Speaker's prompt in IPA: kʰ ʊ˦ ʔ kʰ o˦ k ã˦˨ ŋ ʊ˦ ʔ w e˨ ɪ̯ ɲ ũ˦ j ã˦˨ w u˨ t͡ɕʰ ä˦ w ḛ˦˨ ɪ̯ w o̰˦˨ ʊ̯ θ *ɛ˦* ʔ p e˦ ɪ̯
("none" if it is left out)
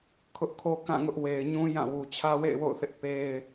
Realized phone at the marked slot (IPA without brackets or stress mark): ɪ˦